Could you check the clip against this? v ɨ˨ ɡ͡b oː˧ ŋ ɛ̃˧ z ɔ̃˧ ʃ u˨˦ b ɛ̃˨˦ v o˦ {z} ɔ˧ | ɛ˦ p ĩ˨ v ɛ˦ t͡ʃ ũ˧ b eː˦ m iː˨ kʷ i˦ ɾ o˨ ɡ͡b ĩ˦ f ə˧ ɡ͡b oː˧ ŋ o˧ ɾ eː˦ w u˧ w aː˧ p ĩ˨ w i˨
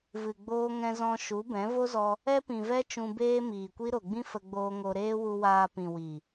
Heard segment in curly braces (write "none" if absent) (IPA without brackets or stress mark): z